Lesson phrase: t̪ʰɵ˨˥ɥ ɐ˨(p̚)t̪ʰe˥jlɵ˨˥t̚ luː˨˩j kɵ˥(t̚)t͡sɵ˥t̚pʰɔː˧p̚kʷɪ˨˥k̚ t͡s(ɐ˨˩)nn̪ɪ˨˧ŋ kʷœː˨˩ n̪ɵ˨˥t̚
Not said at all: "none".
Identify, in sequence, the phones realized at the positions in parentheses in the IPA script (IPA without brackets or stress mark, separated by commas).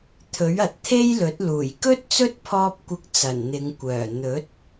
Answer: t̚, t̚, ɐ˨˩